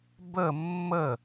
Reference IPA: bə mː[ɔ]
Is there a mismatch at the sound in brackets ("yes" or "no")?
yes